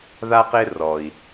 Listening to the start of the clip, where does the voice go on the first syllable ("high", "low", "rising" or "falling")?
high